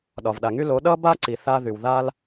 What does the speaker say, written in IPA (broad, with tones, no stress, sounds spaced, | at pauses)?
ɗ ɒ˩ v ɗ a˩ ŋ y˥ l o˩˥ ɗ ʌ˥ b a˥ ǀ i˩ θ a˥ ð y˩ w ð a˥ l